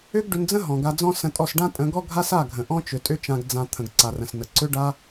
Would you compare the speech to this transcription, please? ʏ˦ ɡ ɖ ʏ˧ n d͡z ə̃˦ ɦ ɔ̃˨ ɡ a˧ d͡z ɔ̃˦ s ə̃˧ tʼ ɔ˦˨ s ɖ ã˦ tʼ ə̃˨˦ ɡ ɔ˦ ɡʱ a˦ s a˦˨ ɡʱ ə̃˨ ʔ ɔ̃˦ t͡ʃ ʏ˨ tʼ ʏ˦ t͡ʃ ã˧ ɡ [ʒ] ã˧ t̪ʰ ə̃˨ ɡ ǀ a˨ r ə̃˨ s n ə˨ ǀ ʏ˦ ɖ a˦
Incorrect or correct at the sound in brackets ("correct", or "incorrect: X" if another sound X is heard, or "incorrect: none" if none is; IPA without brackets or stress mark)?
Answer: incorrect: d͡z